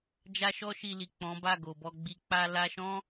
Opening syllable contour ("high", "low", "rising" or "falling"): high